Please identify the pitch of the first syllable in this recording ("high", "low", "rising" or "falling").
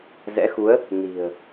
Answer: rising